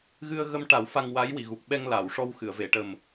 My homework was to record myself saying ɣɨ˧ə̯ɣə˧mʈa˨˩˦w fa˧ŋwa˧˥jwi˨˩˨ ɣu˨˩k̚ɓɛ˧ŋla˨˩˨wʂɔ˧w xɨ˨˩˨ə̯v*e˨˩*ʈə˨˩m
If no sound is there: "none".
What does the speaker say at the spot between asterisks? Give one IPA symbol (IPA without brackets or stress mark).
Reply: e˨˩˨